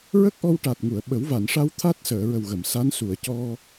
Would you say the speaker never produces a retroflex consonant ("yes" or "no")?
no